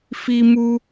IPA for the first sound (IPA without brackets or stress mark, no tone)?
f